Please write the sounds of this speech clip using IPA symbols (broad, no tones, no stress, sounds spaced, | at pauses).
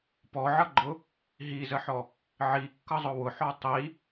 p ɔ ʕ ʌ ɡ͡ǃ ʊ | ɦ i z ə ħ ɔ | ʕ i kː ʌ zˤ ʊ w ʊ ħ ɔ tˤ i